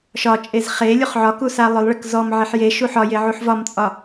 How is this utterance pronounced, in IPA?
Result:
ʃ ɒ t͡ʃʼ e z χ e lʲ u χ ʕ ɒ k u s a lˠ ɵ lˠ ɭ ə k z ɔ m ʕ e ħ j e ʃ u ħ ɒ j e ʕ u ħ v ɒ m t͡sʼ ɒ

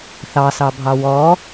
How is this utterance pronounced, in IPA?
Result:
θ ɑ s ɑ bʱ ɑ w ɔ

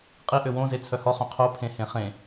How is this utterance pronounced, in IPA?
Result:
qʼ i ʔ ø w õ z e t͡sʰ œ h ɔ χ œ̃ qʰ o pʰ ẽ h ẽ χ ẽ

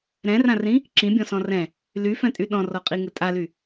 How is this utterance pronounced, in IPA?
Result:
ɾ ɛ̃ r ã r ĩ | ǁ ĩ bʲ ɔ̃ s ɔ̃ r ɛ̃ | l y f ɛ̃ tʼ y ɗ ɔ̃ r ɔ qʼ i ŋ ɘ tʼ a l y

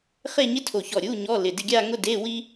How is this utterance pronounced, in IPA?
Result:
χ e˥˧ ɲ ɪ˥ tʰ o˧˩ ç ɔ˧˩ ɾʲ u˧˥˧ ɲ ɔ˧˥˧ l ɪ˧˩ d ɪ˥˧ ɡʲ a˥˧ ŋ ʊ˥˧ d e˧˥˧ w i˥

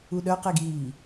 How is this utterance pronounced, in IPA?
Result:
u ɗ œ q e ɡ iː

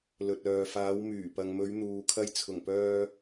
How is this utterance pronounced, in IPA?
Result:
l ɵ˨ t̚ œː˨ f aː˨˧ w m yː˨˩ p ɐ˨ ŋ m ɵ˨˧ ɥ n̪ uː˨ kʰ ɐ˧ j t͡sʰ ʊ˨˩ ŋ p œː˧

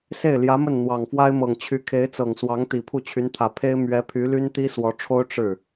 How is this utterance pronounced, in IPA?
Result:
s e˥˩ ɪ̯ l j ä˧˥ m ə˥˩ n n̪ w ɑ˨˩ ŋ f w a˥ ɪ̯ m ɤ˨˩ ŋ t͡ɕʰ y˧˥ kʰ e˧˥ ɪ̯ t͡s ɤ˨˩ ŋ s w ɑ˧˥ ŋ t̪ i˨˩ pʰ u˥˩ t͡ɕʰ y˧˥ n t̪ʰ ä˨˩ pʰ e˥ ɪ̯ m ɥ ɛ˧˥ pʰ y˧˥ l y˥ n t̪ i˥ s w ɔ˧˥ ʈ͡ʂʰ o˥ ʊ̯ ʈ͡ʂ ɻ̩˥˩

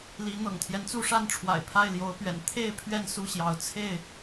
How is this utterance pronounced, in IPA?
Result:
l i˨˦ n̪ ɤ̰˨˩ ŋ t̪ʰ j ɛ˦ n t͡s u˥˨ ʂ a˥˨ n ʈ͡ʂʰ w a̰˨˩ ɪ̯ pʰ a˥˨ ɪ̯ l j o˨˦ ʊ̯ p ɥ ɛ̰˨˩ n t̪ʰ e˥˨ ɪ̯ pʰ ɥ ɛ˥˨ n s u˥˨ ɕ j ɑ˨˦ ʊ̯ t͡sʰ e˥˨ ɪ̯

